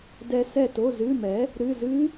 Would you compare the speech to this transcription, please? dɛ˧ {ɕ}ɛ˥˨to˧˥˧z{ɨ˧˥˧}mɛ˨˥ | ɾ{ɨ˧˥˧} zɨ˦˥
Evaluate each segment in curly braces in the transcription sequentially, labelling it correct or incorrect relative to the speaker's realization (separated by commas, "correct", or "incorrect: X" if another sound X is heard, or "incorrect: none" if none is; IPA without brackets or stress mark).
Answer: incorrect: s, correct, correct